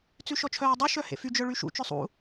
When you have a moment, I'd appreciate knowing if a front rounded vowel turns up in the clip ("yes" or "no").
yes